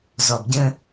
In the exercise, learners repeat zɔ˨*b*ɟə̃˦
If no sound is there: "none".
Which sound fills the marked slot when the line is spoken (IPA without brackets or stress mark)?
b